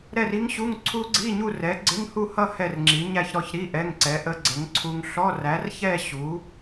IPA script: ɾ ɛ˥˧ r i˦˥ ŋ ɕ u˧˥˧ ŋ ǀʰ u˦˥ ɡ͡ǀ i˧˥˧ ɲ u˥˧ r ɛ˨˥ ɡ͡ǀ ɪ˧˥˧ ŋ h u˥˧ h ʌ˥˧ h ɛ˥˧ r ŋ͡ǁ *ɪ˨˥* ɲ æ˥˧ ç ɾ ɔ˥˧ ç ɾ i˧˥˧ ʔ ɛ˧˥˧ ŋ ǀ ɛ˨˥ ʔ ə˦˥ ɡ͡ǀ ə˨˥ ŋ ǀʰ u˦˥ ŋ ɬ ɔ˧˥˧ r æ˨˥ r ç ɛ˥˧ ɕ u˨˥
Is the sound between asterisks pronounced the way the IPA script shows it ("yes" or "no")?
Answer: no